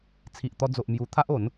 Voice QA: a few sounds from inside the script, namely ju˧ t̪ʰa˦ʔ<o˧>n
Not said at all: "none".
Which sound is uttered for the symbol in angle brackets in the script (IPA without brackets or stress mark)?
o˨˦